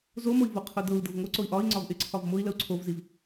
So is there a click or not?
yes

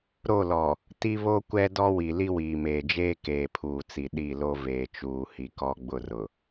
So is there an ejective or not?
no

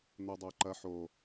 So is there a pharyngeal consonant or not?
yes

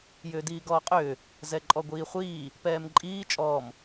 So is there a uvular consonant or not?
yes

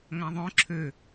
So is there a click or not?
yes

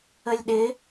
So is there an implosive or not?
yes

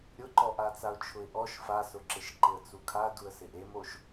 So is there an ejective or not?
no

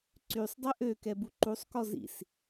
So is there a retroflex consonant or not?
no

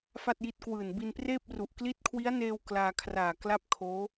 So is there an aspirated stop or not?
yes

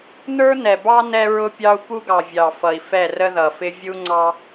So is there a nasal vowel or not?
no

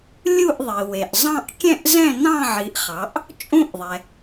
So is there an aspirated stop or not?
no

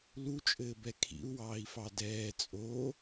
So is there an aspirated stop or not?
yes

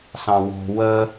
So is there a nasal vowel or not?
yes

